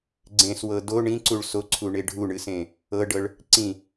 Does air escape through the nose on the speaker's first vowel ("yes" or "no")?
yes